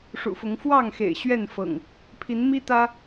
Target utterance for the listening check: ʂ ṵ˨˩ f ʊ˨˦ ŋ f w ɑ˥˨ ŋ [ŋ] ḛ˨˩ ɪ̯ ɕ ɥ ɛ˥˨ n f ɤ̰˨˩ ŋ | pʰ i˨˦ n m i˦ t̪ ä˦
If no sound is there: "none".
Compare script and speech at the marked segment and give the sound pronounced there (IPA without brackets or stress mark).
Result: x